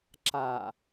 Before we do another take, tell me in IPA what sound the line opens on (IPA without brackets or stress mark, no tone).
ǁ